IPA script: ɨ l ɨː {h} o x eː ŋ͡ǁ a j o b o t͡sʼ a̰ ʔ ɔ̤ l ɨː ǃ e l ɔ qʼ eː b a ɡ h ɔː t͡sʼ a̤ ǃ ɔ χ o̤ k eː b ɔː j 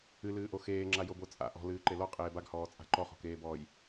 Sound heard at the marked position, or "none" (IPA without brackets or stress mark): ʔ